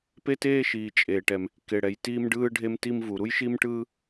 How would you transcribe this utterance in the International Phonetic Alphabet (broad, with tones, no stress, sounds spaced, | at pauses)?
p e˥ t eː˥ ʃ iː˩ t͡ʃʼ eː˩ ʈ ɛ˩ m | k e˩ ɽ ɛ˩ j t iː˥ m ɖ ɯː˥ ɖʱ e˥ m t i˥ m v u˩ ɾ u˥ j ʃ i˥ m ʈ ɯː˥